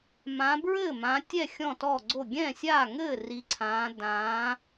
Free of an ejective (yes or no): yes